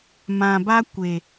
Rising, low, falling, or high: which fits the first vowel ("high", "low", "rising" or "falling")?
low